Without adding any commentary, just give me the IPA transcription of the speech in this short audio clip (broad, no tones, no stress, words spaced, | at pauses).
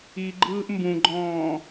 iɡ͡ǃɯːʔ mbũɡ͡ǃɔ̃ː